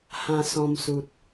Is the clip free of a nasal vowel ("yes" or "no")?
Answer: no